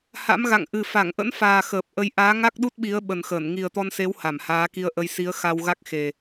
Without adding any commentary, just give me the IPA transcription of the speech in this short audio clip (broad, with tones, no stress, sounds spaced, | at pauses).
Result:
h a̰˧˥ m ɣ a̰˧˨ ŋ ʔ ɨ˨˩ f a˧˩ ŋ ʔ ə̰˧˥ n f aː˨˩ x əː˨˩ p̚ ʔ ə˨˦ j ʔ aː˨˦ ŋ a˦˥ k̚ ɗ u˦˥ t̚ ɓ i˨˦ ə̯ ɓ ə˨˩ n x ə˧˩ n ŋ i˨˩ ə̯ t̪ ɔ˧ n s e˨˦ w h a˧˩ m h aː˨˦ k i˧ ə̯ ʔ ə˧ j s i˨˦ ə̯ x a˧ w ɣ a˦˥ k̚ x e˨˩